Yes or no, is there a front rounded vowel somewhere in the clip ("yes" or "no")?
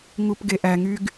yes